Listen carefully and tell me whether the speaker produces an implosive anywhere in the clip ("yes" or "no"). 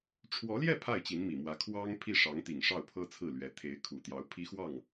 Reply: no